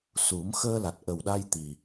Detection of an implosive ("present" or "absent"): present